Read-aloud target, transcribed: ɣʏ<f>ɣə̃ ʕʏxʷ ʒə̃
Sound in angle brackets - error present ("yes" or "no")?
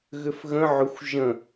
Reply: no